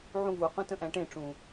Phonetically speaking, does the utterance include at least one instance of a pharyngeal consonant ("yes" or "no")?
yes